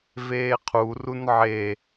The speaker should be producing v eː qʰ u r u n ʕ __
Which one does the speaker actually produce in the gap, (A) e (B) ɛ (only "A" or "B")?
A